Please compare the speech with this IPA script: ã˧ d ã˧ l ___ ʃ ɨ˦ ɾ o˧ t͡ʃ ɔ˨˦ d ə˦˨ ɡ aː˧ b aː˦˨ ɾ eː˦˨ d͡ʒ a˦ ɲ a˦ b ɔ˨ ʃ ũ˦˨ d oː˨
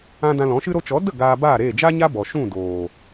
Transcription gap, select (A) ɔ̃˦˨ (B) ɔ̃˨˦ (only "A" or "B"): B